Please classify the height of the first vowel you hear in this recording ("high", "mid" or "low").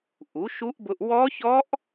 high